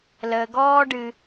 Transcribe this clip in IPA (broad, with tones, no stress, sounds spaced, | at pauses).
l əː˩ ɡ ɔː˧ ɖ ɨ˩